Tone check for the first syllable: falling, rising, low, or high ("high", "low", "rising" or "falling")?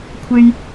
high